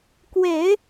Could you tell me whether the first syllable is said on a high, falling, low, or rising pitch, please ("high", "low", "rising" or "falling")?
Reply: low